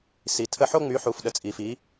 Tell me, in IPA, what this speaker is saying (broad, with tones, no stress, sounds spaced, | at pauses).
s i˩ tʰ ə˧ ħ o˧ ŋ͡m y˩˧ ħ u˩ f ɗ ə˩ t͡sʼ i˩ f i˩˧